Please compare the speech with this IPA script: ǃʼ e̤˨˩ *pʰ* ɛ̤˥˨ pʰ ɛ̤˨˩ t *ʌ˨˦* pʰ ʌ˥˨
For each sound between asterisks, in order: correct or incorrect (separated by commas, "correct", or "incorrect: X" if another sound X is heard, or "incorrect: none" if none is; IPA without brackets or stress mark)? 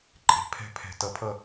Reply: correct, correct